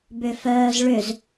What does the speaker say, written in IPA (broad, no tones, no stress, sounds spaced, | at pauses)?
b ʏ f œː z ɭ ʏ z